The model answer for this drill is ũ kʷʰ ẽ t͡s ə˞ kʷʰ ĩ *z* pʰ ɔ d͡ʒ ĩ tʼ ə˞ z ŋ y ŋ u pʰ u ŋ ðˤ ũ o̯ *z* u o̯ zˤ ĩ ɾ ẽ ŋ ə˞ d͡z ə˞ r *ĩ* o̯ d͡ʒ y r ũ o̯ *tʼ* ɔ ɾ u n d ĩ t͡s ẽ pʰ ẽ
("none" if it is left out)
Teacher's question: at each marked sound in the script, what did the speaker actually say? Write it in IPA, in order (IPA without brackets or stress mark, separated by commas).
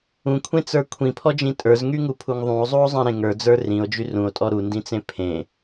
none, zˤ, ĩ, tʼ